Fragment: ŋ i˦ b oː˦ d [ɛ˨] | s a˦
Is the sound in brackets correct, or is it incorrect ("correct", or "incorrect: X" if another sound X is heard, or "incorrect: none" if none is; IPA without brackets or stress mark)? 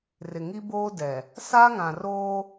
correct